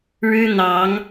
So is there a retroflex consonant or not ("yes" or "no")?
yes